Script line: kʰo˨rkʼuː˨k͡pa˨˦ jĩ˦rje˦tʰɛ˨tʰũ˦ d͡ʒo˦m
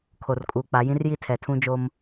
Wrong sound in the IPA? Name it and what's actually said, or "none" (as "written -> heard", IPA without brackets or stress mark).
e˦ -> i˦